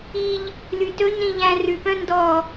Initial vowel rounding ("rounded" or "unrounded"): unrounded